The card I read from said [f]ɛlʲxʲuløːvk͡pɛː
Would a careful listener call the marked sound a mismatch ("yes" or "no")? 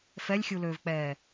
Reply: no